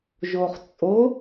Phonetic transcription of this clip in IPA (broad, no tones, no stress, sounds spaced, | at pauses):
ʒ o χ t͡sʼ o